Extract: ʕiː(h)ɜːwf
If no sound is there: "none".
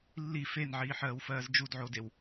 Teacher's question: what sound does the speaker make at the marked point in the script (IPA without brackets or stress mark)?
ħ